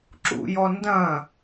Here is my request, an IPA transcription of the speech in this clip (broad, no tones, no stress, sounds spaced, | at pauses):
ǁ ṵ j ɔ n d ɐ̃